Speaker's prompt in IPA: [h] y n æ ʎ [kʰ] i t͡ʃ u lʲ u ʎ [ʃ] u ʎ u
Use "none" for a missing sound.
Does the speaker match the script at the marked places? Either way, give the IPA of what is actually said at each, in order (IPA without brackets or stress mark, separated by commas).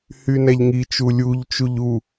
h, ŋ, t͡ʃ